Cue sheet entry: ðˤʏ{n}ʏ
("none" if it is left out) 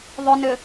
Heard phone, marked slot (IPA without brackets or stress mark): n